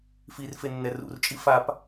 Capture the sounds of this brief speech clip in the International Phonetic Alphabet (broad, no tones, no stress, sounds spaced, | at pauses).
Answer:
f i r f e nː ɛ r ṵ r t͡ʃʼ i f a p